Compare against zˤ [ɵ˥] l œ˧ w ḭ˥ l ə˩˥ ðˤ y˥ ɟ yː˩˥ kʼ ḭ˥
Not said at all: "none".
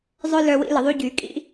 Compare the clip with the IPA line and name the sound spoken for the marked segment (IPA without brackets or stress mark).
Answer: œ˥